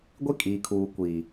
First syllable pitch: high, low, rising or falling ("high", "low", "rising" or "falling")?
high